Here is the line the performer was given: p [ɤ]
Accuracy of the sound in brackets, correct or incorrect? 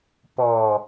incorrect